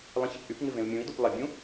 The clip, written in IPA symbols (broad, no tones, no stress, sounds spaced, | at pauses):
lˠ ẽ ç ɪ p ʔ y p ŋ ɪ v ẽ u̯ mʲ ũ i̯ d u p lˠ ɪ bʲ ũ